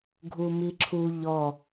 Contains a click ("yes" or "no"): yes